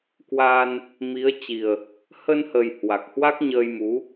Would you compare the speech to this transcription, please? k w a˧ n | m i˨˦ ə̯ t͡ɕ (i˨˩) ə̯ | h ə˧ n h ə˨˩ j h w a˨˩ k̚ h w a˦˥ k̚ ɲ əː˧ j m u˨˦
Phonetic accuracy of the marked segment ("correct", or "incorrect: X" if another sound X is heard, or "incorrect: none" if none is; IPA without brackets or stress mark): correct